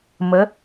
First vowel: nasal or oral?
oral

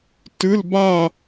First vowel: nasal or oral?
oral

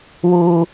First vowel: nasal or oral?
oral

